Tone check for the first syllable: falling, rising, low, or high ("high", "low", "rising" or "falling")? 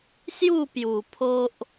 falling